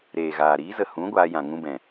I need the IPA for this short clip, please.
ɾ eː˨ ɣ aː˨ ɾ iː˨˦ z ə˨ h ũ˨˦ ɡʷ aː˧ j ã˨ ŋ ũ˧ b ɛ̃˨

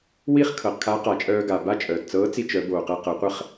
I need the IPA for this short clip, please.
w i˥ χ kʰ ɤ˩˧ q kʰ a˧˥ q a˩˧ t͡ʃʼ œː˧ ɡ a˩ b a˥ t͡ʃʼ œː˩ t t͡s ɤː˧˥ t͡s i˧ t͡ʃ œ˩˧ b oː˩ q ɛ˧ q ɤ˩˧ qʷ ə˧ χ

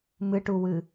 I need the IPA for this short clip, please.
m ɨ ʈ u w ɨ

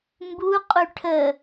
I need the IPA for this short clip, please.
m b u qʼ u ʈʰ ə

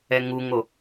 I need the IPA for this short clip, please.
ɛ ŋ u ŋ o

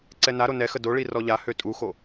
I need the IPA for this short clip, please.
ǀ ɛ n a ɾ o n ɛ x ə d o ɭ i r ɔ ʎ a h ø tʼ u x o

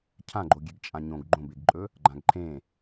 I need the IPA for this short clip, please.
cʰ ã ɡ͡ǃ o ɡʲ e ɡ t͡ʃʼ ã ɲ õ ɡ ɡ͡ǃ õ b e ɡ ǃʼ ɵ | ɡ͡ǃ ã ɡ ǃʰ ẽ

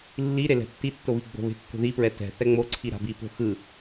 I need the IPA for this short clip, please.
lː i ɾ e l ɛ̤ tː i tː o β i ɡ͡b o̤ β e̤ kː o̤ ð i p ɹ ɛ t ɛ̤ θ ɛ ŋ͡m o ǀʰ i ɾ a̤ b i p o̤ x ɯ

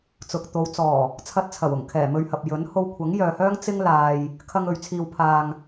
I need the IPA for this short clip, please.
t͡s ʊ˨ k̚ t̪ o˨˧ w t͡s ɔː˨˩ | t͡sʰ ɐ˧ t̚ t͡sʰ ɐ˨˩ w ʊ˨˩ ŋ kʰ ɛː˨˩ m ɵ˧ ɥ h ɐ˨ p̚ j ɵ˨˥ n h o˧ w kʷʰ ɐ˨˥ ŋ j œː˨ h œː˥ ŋ t͡s ɪ˥ ŋ l aː˨ j | kʰ ɐ˧ ŋ ɵ˨ ɥ t͡sʰ iː˨ w pʰ aː˨ ŋ

